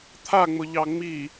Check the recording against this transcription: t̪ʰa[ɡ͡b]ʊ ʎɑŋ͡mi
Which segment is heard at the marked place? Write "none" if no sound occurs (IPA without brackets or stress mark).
ŋ͡m